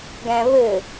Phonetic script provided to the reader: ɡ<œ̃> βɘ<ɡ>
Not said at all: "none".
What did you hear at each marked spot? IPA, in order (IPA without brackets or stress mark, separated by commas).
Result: æ̃, none